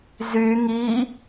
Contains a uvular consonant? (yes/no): no